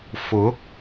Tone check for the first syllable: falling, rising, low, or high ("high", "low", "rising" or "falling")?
rising